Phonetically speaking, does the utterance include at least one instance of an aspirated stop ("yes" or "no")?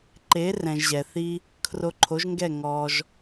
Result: yes